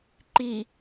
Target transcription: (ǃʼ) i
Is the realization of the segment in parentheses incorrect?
yes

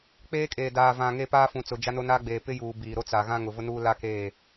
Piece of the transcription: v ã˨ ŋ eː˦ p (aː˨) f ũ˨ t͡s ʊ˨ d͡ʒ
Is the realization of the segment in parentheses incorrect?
yes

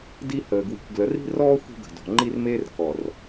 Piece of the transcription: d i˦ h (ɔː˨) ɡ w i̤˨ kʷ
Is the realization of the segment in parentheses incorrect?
yes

